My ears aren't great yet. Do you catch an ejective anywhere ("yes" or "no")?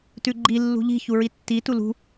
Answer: no